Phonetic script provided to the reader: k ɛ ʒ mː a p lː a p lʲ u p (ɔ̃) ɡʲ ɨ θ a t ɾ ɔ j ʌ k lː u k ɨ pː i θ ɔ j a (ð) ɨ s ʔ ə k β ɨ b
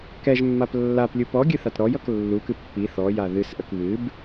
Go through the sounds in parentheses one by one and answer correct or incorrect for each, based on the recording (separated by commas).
incorrect, correct